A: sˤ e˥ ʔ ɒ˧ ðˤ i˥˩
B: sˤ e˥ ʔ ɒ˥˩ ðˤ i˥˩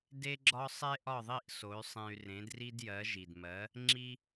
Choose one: B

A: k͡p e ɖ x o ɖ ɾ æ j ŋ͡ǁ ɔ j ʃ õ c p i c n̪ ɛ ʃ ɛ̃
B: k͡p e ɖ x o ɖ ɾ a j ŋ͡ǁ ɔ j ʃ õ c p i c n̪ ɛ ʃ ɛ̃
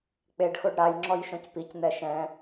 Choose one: B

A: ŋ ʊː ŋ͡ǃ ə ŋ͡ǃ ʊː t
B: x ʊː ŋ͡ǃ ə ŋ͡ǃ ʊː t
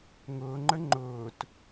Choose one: A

